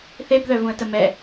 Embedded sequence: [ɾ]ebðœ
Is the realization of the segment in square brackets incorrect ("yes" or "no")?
yes